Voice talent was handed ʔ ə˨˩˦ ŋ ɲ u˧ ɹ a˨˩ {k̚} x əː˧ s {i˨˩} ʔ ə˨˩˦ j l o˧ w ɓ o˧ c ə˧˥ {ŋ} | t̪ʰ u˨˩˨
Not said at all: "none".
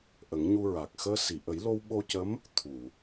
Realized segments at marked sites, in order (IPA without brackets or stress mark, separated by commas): k̚, i˨˩˨, m